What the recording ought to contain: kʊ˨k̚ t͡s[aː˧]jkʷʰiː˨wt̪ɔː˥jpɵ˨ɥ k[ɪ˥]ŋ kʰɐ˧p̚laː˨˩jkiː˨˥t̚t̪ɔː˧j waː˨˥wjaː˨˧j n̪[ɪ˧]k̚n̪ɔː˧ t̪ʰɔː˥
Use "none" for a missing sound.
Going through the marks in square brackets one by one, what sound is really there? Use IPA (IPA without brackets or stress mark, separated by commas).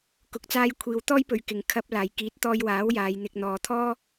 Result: aː˧, ɪ˨, ɪ˧